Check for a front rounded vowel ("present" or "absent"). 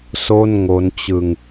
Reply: absent